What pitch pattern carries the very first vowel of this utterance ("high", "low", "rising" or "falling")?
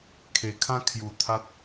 low